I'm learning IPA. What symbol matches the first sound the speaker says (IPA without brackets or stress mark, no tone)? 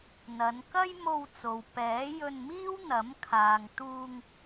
n̪